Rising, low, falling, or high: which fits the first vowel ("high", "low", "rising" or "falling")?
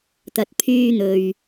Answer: low